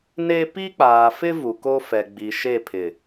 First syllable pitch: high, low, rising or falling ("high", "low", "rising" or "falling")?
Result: high